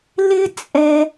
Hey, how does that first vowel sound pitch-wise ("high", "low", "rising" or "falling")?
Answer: high